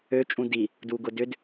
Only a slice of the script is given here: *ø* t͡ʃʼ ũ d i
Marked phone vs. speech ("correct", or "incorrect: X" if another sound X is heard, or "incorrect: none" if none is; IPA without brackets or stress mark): correct